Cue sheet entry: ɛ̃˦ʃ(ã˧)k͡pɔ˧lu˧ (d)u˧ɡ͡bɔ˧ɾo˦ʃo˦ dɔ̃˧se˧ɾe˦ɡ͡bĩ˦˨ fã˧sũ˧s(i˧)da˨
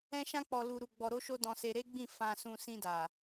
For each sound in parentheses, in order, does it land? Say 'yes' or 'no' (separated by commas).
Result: no, no, no